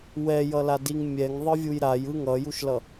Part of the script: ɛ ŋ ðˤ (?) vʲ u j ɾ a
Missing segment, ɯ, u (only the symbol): ɯ